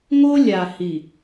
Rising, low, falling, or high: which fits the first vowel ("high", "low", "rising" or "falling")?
high